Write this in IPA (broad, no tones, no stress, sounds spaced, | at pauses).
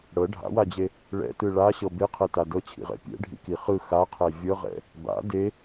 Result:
ɽ ɤ ɖʱ a̰ w a d͡ʑ e | ɭ ɛ̰ t ɯ ɭ a ɕ ɤ b e qʰ ɛ t a d ɤ t͡ɕʰ ḭ ʁ ɛ̰ pʲ ɛ̰ ɖʱ ḭ k i χ ɯ x a qʰ ɛ vʲ ɤ ʁ ɛ̰ | b a̰ d e